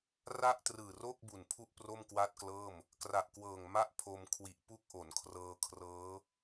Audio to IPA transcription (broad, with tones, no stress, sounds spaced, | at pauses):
r a˥˩ ʔ t r ɯː˨˩ r oː˥˩ k̚ b u˨˩ n pʰ u˥˩ ʔ p r o˥˩ m k w a˥˩ t̚ k l ɤː˥˩ m | k r a˨˩ ʔ k w ɤː˨˩ ŋ m a˥˩ ʔ pʰ o˧ m kʰ w i˨˩ ʔ p u˦˥ k̚ ʔ o˩˦ n kʰ r ɤː˧ kʰ r ɤː˦˥